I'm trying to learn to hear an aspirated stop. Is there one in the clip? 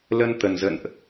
no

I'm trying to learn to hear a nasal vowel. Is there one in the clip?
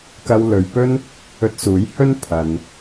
no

